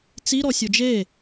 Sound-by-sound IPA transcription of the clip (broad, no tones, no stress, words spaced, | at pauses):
t͡siɾɔ sʲod͡ʒe